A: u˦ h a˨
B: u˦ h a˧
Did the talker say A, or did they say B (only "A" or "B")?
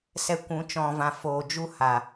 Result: A